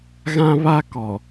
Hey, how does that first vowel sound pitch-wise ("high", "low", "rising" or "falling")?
high